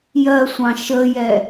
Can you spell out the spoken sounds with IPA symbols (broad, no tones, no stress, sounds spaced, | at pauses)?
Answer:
j ɜ sʷ ɑ̃ ʃ ə j ɛ